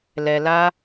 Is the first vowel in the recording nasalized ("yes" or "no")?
no